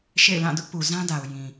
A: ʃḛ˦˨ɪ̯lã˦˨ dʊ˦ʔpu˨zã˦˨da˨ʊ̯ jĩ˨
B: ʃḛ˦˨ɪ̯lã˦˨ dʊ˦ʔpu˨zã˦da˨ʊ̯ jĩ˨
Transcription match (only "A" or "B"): B